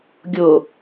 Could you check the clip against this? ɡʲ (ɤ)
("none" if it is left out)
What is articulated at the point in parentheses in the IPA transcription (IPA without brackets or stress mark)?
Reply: o